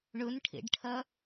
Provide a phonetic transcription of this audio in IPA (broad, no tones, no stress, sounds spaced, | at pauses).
ɳ ɵ n ʈʰ ḛ ɖ ʈʰ ɐ